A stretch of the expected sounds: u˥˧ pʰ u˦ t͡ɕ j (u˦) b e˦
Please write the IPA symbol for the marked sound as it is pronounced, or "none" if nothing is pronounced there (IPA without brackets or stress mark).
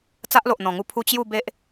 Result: u˥˧